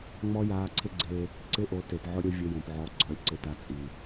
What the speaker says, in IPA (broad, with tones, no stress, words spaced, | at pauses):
ŋ͡mɔ˦jaː˧ǀʰɪ˦ɡ͡ǀe˧ | ǀɪ˦ ʔo˧te˨p ʕʊ˧ ɾʲo˦vʲʊ˧jõ˨pʕɔ˨˦ ɡ͡ǀɔ˨˦lʲǀɪ˧ta˧ t͡sʼi˨